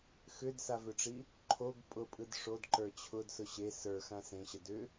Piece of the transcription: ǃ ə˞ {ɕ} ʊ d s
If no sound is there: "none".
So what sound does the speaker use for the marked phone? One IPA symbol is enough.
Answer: t͡ɕʰ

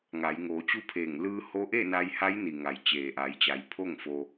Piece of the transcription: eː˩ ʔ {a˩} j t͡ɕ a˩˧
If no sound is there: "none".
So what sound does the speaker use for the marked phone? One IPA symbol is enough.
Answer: a˩˧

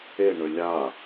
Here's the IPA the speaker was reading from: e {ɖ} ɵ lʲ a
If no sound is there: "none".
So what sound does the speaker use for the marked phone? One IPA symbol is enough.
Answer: ɳ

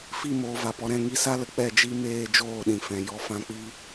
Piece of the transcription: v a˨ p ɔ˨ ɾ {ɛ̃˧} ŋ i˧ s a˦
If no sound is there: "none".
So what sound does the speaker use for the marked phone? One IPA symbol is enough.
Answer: ɛ̃˦˨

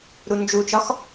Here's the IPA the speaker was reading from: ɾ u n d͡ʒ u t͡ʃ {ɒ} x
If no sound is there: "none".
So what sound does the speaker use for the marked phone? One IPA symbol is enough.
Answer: ɒ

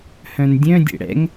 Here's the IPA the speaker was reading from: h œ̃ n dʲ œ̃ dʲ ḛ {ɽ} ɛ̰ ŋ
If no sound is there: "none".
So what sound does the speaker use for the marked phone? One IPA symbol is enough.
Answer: ɽ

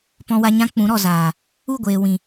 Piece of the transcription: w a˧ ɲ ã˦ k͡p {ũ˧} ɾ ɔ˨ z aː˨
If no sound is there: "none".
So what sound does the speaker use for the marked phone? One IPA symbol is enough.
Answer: ũ˨˦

